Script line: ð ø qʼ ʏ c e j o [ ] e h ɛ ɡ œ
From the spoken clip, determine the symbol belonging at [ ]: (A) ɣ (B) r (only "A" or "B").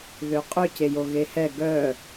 A